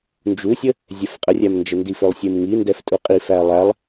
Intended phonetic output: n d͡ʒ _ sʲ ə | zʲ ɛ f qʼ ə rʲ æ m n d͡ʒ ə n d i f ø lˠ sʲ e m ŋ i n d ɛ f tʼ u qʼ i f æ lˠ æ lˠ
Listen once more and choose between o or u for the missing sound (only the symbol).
u